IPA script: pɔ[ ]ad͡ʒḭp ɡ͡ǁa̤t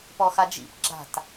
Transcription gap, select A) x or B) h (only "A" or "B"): A